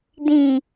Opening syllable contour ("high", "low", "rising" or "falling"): low